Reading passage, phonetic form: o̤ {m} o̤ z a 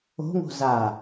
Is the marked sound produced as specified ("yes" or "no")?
no